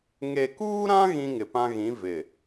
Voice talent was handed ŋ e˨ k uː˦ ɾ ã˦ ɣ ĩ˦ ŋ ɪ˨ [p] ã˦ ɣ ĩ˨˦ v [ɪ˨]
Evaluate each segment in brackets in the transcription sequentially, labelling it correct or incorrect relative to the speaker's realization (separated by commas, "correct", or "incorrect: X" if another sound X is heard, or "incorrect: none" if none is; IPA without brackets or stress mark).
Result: correct, correct